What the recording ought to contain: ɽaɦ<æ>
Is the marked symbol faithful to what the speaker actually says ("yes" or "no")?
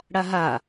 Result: no